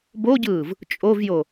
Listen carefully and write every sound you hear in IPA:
boɟɯːv | t͡ʃʼovjo

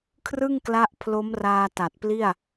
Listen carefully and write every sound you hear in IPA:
kʰrɯ˥˩ŋkla˦˥ʔpʰlo˦˥mraː˧ ta˨˩t̚pli˥˩a̯

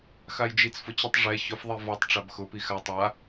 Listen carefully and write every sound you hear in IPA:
xajd͡ʒit͡s fʊt͡ɕʊtˤ ʐɛ çʊf ðˤivɔtˤ ʈ͡ʂabxʊ pixa tˤa

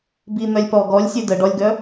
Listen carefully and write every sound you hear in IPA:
bin̪œlʲpɔ ɡɔlʲsʲø də ɖɔlʲɡœ

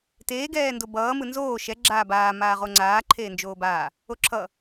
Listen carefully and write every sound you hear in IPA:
teː ɡɛːndobʌː mɯnzoː ʃɛ ɡ͡ǁaːbaː maːʁoŋ͡ǀaː ǃʰeːnd͡ʒoːbaː | oǁʰʌ

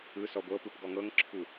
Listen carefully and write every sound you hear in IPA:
ɯsɔ ɡʷɤpɯp ɡɔŋɤŋǁʰu

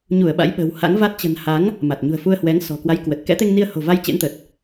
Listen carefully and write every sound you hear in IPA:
ɲu˧˩ə̯ ɓa̰˧˥jɓə̤ː˨˩wha̰˧˥ŋva˦˥t̚ t͡ɕə̤˨˩nha˨˦ŋ | ma˨˩t̚ɲṳ˨˩ə̯fu˧ə̯hwɛ˨˦ŋ sɔ̤˨˩kwa˨˦jkwə˨˩t̚ kɛ̰˧˥t̪e˧ŋ ni˧ə̯ho̤˨˩va˧j t͡ɕḛ˧˥nt̪ə˨˩t̚

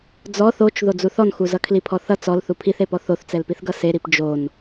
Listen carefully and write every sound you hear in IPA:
d͡zɔ θot͡ʃ ðod͡zuθɔnxu zʌkʰlipʰɔθʌ t͡sɔl θupʰiθepɔ θoθt͡sɛlpiθɡʌ seɾip d͡ʒon

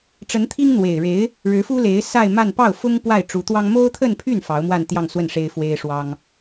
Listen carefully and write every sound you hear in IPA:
ʈ͡ʂə˧˥nt̪ʰi˥ŋ n̪we˨˩ɪ̯ɻe˧˥ɪ̯ | ɻɻ̩˧˥fu˥le˧˥ɪ̯ sa˥˧ɪ̯ma˥˧n pɑ˥˩ʊ̯fʊ˥ŋ pwa˥˩ɪ̯ʈ͡ʂu˧˥t̪wɑ˥ŋ mo˥ʊ̯t̪ʰə˥˧npʰy˥˩n fɑ˧˥ʊ̯mwa˥˧nt̪jɑ˥˧ŋswə˥˩n ʂe˥ɪ̯fwe˥ɪ̯ʂwɑ˥ŋ

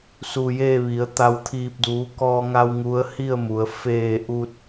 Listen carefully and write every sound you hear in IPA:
su˧jeː˥˨ʋi˩˧ə̯ t̪a˧wt̪ʰiː˧p̚ duː˩˧kɔː˧ŋa˧w ŋu˧˥ə̯hi˥˨ə̯mu˩˧ə̯ feː˧˩ ʔu˧t̚

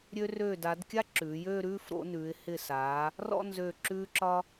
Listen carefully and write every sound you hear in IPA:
ɾʲø˧røː˧˩da˩˧d kʲa˥ǁʉː˩˧jøː˥˧ ɾʉː˥˧fɾo̰˧nʉː˩˧ɪ̯ hɪ˧˩saː˩˧ | rɔ̰˥˧nzø˧˩ ǁʉː˧ǁɒ˧

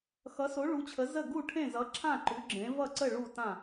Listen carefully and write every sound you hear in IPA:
xʌ˨˥so˨˥ ɭu˨˥t͡ɕʰə˨˥ zə˥˨ ɡu˥˨ʈʰẽ˥˨zʌ˨˥ ǁʰã˥˨ǃʉ˨˥ ɡ͡ǁẽ˨˥ vʌ˥˨ǀə˥˨ ɭu˥˨tã˥˨

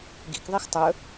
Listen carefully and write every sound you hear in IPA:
ɡḭkðˤix tˤɵ

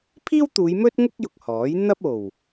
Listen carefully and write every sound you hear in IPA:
pʰiː˥wt̪uː˨˧j mɵ˥t̚ŋʊ˥k̚ jʊ˧k̚hɔː˨˥j n̪ɐ˥p̚o˨˩w

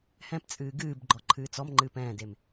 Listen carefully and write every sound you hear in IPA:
hɛ̃pt͡sʼɨː ɡɨːbɡ͡ǃɔ ǃʰɨːt͡sɔmŋ͡ǃɨːp ɛ̃ːdem

